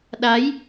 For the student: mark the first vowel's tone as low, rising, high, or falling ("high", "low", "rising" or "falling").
rising